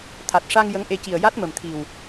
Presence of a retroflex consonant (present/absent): present